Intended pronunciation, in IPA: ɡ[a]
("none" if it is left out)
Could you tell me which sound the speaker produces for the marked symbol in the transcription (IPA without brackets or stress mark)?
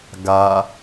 a